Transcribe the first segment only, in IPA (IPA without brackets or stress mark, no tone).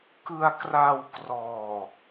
k